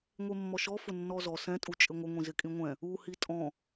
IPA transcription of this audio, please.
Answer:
ŋʷ e mː ɔ ʃ ɔ f ʊ nː ɔ z ɔ s ɛ̃ tʼ u t͡ʃʼ ɪ ŋʷ ɪ ŋʷ ĩ z ɪ kʼ ĩ ŋʷ ɛ̃ | u h i tʼ ɔ̃

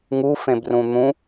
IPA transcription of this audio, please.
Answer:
ŋ u f ẽ b r ũ n̪ ũ

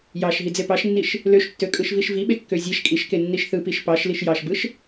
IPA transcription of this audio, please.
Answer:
j ɑ ʃ ɦ i d͡z e p ɑ ʃ nː i ʃ | l ø ʃ tː ø kʼ ɯ ʃ v i ʃ v i ɓ e kː ø zʲ e ʃ kʼ i ʃ k e nː i ʃ θ ɯ p i ʃ p ɑ ʃ l i ʃ j ɑ ʃ b ɯ ʃ

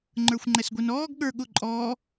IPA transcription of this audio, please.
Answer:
ŋ͡ǃ ə˞ xʷ ŋ͡ǃ ɛ s ɡʷ i n ɔː ɡ ɠ ə˞ ɠ ʊ ǃʼ ɔː

